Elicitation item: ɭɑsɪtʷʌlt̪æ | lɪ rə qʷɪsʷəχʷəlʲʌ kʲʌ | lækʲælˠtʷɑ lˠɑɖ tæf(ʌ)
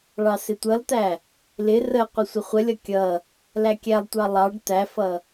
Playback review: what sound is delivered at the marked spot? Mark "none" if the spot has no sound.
ʌ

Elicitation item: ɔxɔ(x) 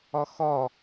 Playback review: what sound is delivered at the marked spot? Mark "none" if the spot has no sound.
none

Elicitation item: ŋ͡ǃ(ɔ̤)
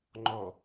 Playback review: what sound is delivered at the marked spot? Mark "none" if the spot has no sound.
ɔ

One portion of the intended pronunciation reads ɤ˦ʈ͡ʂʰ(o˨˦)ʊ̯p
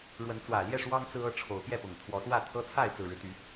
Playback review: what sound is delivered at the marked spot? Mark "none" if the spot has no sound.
o˨˦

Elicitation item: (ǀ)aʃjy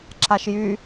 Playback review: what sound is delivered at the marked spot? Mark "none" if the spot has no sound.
ǁ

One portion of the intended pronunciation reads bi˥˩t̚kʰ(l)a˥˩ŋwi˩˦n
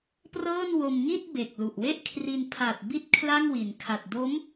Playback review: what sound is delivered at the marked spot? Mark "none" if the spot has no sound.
l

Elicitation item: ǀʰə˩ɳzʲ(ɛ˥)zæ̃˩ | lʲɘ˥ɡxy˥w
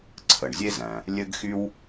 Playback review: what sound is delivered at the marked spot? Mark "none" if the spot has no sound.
e˥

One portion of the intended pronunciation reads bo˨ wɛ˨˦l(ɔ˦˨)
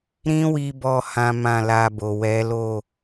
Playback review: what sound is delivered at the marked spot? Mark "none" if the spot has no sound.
o˦˨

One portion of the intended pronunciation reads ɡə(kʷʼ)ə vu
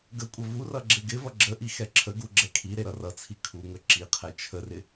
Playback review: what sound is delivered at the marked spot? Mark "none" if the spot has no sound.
kʷʼ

